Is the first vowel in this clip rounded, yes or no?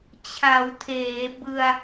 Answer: no